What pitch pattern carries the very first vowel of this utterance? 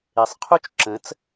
low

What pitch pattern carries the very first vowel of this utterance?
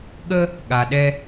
high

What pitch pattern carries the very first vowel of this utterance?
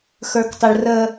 high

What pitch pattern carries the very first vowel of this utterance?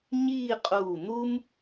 falling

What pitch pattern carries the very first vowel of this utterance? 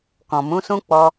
low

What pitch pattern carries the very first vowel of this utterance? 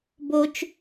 high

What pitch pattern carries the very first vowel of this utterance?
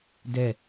falling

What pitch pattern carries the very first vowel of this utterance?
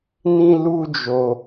high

